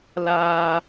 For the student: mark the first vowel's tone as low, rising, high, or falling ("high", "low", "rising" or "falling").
high